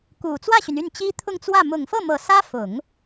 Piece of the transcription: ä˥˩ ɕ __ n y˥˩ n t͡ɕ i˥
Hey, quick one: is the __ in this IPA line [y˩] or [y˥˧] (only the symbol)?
y˩